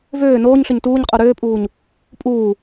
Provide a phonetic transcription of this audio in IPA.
v øː n oː ɲ ɬ ø ɲ t uː ɲ qʼ o ɾ øː pʼ uː ɲ | pʼ uː

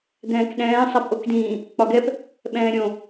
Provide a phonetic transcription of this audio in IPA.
d̪ ɛ̃ː k ɗ ɛ̃ː sˤ a p ʔ o k d ĩː | k͡p ɒ ɡ ɛ p | ɓ ɛ̃ː ɾʲ õ

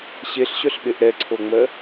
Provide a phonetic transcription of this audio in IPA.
ɕ e ɬ ɕ œ ɬ ɓ e ʔ ɾ ɛ ǀʰ o ŋ͡m ɜ

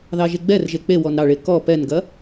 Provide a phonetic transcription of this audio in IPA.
ð ɑ ʒ e ɡ͡b ɛ r ʒ e k͡p e w ɔ n ɾ ɑ ɭ e k ɔ p ɛ n ɡ ɐ

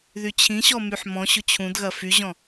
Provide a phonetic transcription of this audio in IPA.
ð y t͡ɕʰ ĩ ɕ ɔ m y ħ m ɔ̃ ɕ ʊ t͡ɕʰ ũ d ɣ ɐ f y ʑ ɔ̃

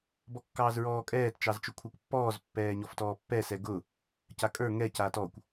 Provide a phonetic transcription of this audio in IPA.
b ɔ kː ɑː z ɹ ɔː kʼ ɛː t t͡ʃ ɑ z t͡ʃ ʊ kʷʰ a kʷ pː ɔː z pː ɛː ɲ ɔ f t ɔː pː ɛ s ɛ ɡ ʊ | c a kʼ ə˞ ŋ ɛ c aː t ɔ kʷ

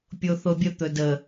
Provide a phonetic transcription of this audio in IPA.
pʲ o θ o bʲ ə t̪ ɵ d ə

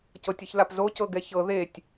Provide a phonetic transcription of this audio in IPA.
c ɤ tʲ ɤ ç l a p z o c ɤ ɡ ɛ ç ɤ ð e tʲ

